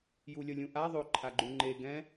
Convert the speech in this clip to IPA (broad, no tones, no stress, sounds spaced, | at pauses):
j u lʲ ʌ lʲ ũ ʔ a ðˤ o ǃʰ a ɡ͡ǃ u ŋ͡ǃ e ɡ ɛ̃